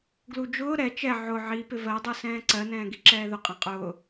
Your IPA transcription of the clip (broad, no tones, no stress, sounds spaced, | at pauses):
ɡ l u d͡ʒ ʊː ɾ ɛ t͡ʃ ɛ ʕ ʊ ʕ i p ɪ v ɜ dˤ u s ɛ̃ː ǀ ɜ n ɛ̃ː ɡ i ǁ ɛː ð ʊ qʼ ɛ̃ qʼ ʊː